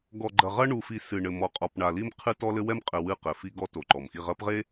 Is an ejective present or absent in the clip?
present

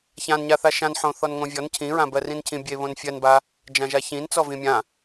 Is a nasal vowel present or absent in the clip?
present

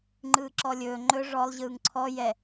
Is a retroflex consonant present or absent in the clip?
present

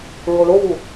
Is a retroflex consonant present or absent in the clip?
present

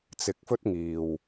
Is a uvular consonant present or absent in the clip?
absent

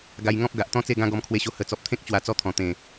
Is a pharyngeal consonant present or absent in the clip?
absent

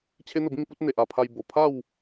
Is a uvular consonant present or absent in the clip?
absent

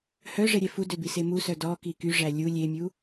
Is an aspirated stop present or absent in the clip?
absent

